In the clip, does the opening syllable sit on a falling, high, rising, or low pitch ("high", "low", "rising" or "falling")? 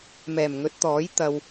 low